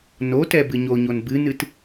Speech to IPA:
notɛ bɨɲoɲon bɨnɨt

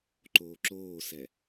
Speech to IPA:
ǃoːǁoːsɛ

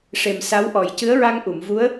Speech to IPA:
ʂe˨˩msa˧˥wʔɔ˨˩j cɨ˧˥ə̯ɹa˧ŋʔu˨˩˨mvu˧˥ə̯

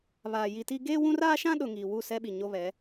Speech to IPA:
βaː˨ji˨ti˦ ɡeː˦wũ˦ raː˦ʃã˦ ɗʊ˨ ŋiː˨ wu˦˨sɛ˦ɓi˨ ɲo˦βɛ˨˦

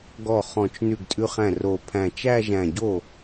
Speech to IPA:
ɡɔ˥˩ χɔ̃˧˩t͡ʃ nʉ˥˩ɡtʼʉ˥˧χæ̃˥˩r o˧˩pʰæ̃˧˩ t͡ʃæ˥˧ʒæ̃˧˩ɟo˥˩

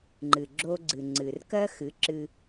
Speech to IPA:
ŋ͡ǃɨ˨ɡ͡ǁo˧ɡ͡ǀɨ˨ ŋ͡ǀɨ˨rkɜ˦ xɨ˨˦ǁɨ˧

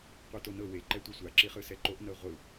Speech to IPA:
qʷɯtonɤ we ǃɛtʷɛsʷa ǁiχɯsɛǃoʔ nɤʁʷɯ

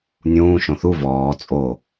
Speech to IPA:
nʲũː ʃõθu vɔː t͡sʼo

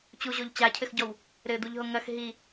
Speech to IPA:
t͡ɕuʑoʎ t͡ɕacʰɘxɟɔw | ɾɘd̪uʎɦo ŋɐx ɦi

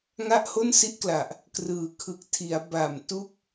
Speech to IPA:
ŋa˥˩ʔho˥˩nsi˥˩ʔkla˨˩ʔ | krɯː˨˩kʰɯ˨˩k̚tʰi˩˦a̯ ba˨˩mtu˥˩k̚

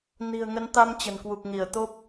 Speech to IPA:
ni̤˨˩ə̯ŋə˨˦nt̪a˧m t͡ɕə̤˨˩nkwu˨˩k̚ŋi˧˩ə̯ t̪o˦˥p̚

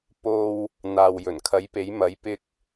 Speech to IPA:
po˧w | n̪aː˨wjɵ˨˩nkʰɐ˨˧jpe˨˧j mɐ˨˧jpɪ˧k̚

